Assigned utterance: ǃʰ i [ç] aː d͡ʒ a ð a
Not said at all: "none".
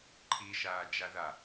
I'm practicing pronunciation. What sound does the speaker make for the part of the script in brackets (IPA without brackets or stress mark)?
ʃ